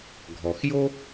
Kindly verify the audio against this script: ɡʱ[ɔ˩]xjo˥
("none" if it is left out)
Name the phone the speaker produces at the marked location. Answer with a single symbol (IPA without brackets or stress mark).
ɔ˩